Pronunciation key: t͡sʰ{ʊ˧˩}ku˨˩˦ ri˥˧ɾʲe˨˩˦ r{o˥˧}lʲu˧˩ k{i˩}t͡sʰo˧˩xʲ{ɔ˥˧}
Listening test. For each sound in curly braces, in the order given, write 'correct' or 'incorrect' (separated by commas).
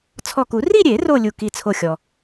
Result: incorrect, correct, incorrect, incorrect